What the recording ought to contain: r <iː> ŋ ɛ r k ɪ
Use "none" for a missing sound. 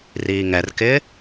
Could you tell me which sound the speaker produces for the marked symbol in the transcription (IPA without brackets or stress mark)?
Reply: iː